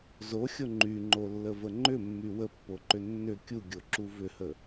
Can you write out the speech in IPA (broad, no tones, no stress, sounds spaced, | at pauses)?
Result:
z o xʲ o ŋ͡ǃ y ŋ͡ǃ o lː ə v ə ŋ͡ǃ ʏ mː y w ə pː o ǃ ʏ nː ʏ kʲ u ɡʲ o ǁ u v ʏ h ə